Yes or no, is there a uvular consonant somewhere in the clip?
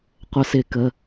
yes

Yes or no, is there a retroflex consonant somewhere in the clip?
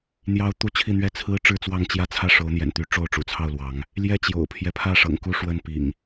yes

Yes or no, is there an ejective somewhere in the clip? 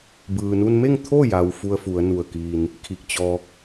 no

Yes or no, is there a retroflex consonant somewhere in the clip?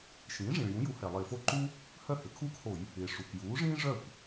yes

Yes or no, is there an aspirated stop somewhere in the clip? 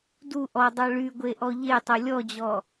no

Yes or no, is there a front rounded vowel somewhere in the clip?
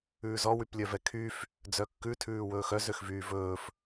yes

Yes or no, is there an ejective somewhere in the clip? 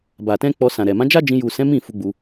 no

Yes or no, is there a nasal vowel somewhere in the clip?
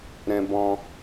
yes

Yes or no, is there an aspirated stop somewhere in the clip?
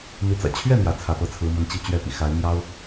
yes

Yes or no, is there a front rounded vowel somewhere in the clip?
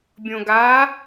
no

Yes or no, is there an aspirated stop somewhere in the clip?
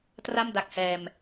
no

